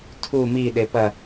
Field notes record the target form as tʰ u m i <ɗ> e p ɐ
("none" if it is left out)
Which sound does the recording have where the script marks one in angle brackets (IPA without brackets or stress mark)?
ɗ